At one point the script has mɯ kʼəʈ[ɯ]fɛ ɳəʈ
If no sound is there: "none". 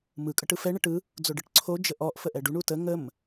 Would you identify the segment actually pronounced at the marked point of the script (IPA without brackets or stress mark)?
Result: ɯ